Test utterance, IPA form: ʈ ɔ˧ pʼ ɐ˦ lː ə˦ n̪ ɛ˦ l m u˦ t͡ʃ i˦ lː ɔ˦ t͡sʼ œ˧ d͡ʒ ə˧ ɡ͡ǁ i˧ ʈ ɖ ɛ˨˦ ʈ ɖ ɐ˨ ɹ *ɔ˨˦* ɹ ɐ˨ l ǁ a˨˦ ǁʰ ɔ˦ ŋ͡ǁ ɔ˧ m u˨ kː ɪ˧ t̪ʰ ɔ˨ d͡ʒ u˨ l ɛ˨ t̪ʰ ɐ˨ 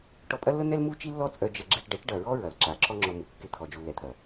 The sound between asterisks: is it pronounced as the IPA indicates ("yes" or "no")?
no